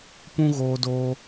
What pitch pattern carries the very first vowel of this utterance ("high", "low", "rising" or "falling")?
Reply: high